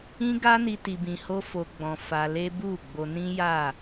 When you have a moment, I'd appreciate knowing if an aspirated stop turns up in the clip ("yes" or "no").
no